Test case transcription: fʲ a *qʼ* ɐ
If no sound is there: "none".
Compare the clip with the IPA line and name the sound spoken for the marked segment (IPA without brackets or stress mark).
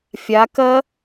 k